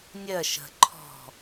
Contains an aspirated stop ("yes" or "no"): yes